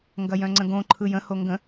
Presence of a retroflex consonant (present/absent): absent